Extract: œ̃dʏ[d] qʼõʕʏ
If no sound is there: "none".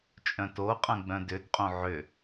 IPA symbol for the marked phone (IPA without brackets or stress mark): d